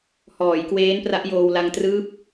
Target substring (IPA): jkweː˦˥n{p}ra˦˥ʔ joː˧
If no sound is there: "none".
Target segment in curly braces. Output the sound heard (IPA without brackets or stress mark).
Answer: p